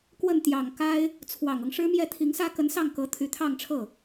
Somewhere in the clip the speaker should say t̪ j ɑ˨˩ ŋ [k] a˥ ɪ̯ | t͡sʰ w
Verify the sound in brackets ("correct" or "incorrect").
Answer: correct